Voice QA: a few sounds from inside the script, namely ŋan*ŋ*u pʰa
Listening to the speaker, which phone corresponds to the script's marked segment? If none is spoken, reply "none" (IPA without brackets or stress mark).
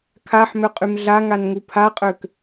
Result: ŋ